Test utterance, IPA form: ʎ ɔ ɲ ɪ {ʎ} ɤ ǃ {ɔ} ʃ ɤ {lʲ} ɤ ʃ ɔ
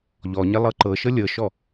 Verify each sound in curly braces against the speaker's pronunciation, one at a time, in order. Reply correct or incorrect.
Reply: incorrect: lˠ, incorrect: ɤ, correct

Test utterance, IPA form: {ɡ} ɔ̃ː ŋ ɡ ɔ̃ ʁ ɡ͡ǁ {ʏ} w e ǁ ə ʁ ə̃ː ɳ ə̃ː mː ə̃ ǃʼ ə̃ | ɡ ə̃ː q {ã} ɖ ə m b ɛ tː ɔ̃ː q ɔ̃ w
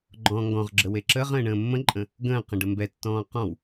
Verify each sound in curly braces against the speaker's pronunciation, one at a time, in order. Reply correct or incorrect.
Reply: incorrect: ɡ͡ǃ, incorrect: ə, incorrect: ə̃

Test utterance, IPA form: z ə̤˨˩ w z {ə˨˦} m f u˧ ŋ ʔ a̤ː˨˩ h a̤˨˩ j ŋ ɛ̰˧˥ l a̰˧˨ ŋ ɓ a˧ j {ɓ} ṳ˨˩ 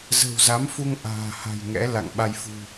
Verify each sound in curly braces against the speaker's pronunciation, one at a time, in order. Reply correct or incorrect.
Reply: incorrect: a˨˦, incorrect: f

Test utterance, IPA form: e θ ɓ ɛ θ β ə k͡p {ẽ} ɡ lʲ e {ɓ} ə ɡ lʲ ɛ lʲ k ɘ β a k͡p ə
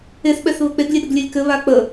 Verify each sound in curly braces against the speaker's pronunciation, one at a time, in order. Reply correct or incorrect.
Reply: incorrect: e, incorrect: ɗ

